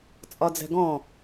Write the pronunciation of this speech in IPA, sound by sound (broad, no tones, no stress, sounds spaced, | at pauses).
t͡sʼ ɒ d͡z ɛ̤ ɡ ɔ̃